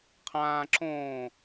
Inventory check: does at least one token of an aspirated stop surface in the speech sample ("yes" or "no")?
yes